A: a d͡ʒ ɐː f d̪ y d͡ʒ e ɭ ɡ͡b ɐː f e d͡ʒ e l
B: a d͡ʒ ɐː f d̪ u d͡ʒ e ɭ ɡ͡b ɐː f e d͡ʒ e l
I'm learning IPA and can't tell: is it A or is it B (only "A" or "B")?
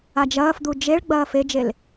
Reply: B